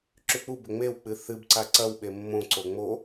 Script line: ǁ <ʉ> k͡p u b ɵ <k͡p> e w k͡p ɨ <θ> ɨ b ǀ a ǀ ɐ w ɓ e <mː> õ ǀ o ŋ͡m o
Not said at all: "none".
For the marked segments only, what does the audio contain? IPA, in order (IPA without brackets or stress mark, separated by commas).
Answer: ʉ, ŋ͡m, θ, mː